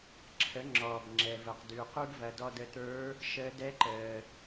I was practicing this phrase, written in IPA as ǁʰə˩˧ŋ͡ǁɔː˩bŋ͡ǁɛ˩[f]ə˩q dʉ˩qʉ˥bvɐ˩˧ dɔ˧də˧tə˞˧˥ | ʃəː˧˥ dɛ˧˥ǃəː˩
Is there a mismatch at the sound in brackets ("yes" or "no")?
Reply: yes